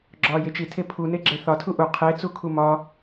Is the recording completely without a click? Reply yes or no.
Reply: no